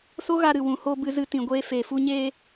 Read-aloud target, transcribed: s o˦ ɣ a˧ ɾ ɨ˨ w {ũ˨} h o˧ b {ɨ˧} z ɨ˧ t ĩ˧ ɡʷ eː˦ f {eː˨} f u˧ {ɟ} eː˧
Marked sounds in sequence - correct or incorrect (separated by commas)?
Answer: correct, correct, correct, incorrect